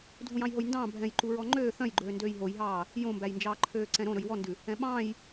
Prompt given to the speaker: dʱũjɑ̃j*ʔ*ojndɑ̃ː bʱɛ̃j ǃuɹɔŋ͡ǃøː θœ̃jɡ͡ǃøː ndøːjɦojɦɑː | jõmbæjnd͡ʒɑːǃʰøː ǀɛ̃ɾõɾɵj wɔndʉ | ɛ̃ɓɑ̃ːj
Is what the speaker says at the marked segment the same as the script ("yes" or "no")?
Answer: no